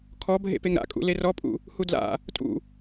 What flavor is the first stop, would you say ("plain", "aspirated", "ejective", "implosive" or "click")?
aspirated